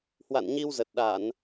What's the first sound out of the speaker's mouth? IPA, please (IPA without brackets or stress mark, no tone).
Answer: h